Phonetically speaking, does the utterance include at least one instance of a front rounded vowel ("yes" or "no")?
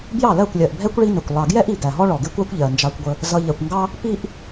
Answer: no